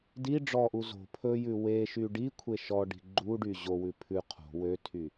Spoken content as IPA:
d i ɖ͡ʐ ɔ ʔ u z o̤ pʰ ɵ j ʉ w e ʃ y ɖ i kʷʰ e ʃ ɔ ɖ i̤ ɡ͡ǃ u ɖ y ʑ o w ʉ pʰ ʉ qʰ o̤ w ø tʰ y

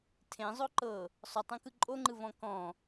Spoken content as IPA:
tʰ ẽ zˤ o ǃ ɤ | sˤ o tˤ õ k ɯ ǃʼ o ŋ͡ǃ ɯ v ɔ̃ k ɔ̃

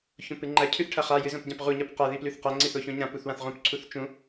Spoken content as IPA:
ç õ p ɨ ŋ͡ǃ ɐ cʰ ʉ θ ʈʰ ɐ χ a j ɨ z õ p ɟ ã p ʁ u ɲ ɐ p q a ð i p l ʉ θ q ɐ ŋ͡ǀ i θ o ç õ ɲ ã p u θ w ã θ ʁ õ p ǀʰ u θ t͡ʃ ũ

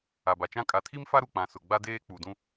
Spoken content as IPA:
a˨ b a˨ t͡ʃ ã˦ kʼ a˨ tʰ i˦ m f a˦ ɾ u˨ k͡p ã˨ s ʊ˨ ɡ͡b a˦ d eː˦ k͡p u˨ d ũ˦

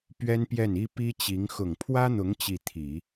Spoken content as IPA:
p ɥ ɛ˥ n p j ɛ˥˩ n i˥ p i˥ t͡ɕ i˧˥ ŋ x ʊ˨˩ ŋ pʰ w ä˥ n̪ ʊ˧˥ ŋ t͡ɕ i˥˩ t̪ʰ i˨˩˦

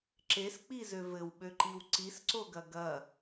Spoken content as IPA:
ǁ e s k͡p i z ø v ɘ w ɓ ø ǃ i w ǀ i s ǀ o ɡ ɐ ɡ ɐ

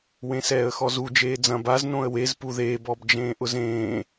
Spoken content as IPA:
w ẽ s ɛː ə̯ x ɔ z u d͡ʒ eː d͡z ɐ̃ b a z n õ ə̯ w e z p u ð eː b ɔ b d͡ʒ ẽː ʔ ʊ z ẽː

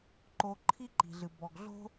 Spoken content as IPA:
ǃ o˧ ǃʰ i˥ ǃ i̤˧ ɮ ɨ˧ b ɔ˧ ɡ ɮ o̤˥

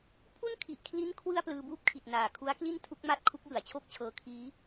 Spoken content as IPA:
pʰ u˥˩ n kʰ i˨˩ ʔ kʰ l i˦˥ n kʰ w ɯ˥˩ a̯ p l ɯː˧ b uː˥˩ p̚ kʰ i˨˩ t̚ n aː˨˩ kʰ u˦˥ a̯ k l i˥˩ n tʰ u˦˥ k̚ m a˦˥ t̚ kʰ u˦˥ k̚ j ɯ˩˦ a̯ t͡ɕʰ o˥˩ k̚ t͡ɕʰ ɤː˧ kʰ iː˦˥

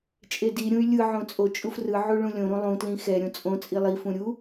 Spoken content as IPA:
t͡ʃʼ e d i ɾʲ ũ y̯ lʲ ɯ ʕ õ t͡sʼ o t͡ʃʼ u f r ɯ ʕ u ɭ ũ lʲ õ ɾ ũ lˠ ũ t l ĩ x ɛ ɾʲ õ t͡sʼ õ t͡sʼ i lˠ i f ũ ɾʲ u

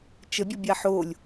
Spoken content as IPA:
t͡ʃ ə bʲ ʌ bʲ a ħ o lʲ

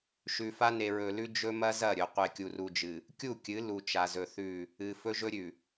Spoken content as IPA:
ʃ ʉ˨ f a˦ n e˨ ɹ ɵ˨ l ʉ˦ d͡ʒ ɵ˦ m ɐ˦ z ɐ˦˨ ɾʲ ɵ˨ qʷ e˨ kʲ u˨ r u˨ d͡ʒ ɨ˨ | kʲ u˦˨ kʲ ɨ˨˦ l u˨ t͡ʃ a˨ z ɵ˨ θ ʉ˦˨ | ɨ˨ f ɵ˦ ʒ ɵ˦ ɾʲ ʉ˨

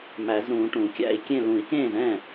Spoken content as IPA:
m æ˨˩˦ z ɾ ũː˨˩˦ ʈ ũ˨˩˦ kʲ æ̰˥˩ i̯ kʲ ẽ˥˩ l ũ˨˩˦ i̯ k ẽː˥˩ z ɛ̃ː˥˩

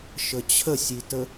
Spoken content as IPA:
ʃ ə t͡ɕʰ ə sʲ i t ə

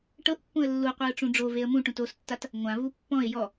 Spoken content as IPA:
ʈ ɤ ʔ pː ũ ə̯ lː u qʷ i ʊ̯ ʈ͡ʂ ũ ɖ͡ʐ o v e ə̯ m ũ ʈ ũ t o s tː a t | ŋʷ ã v u pː ɔ̃ ɪ̯ j ɔ

